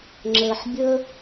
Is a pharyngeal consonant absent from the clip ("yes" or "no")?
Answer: no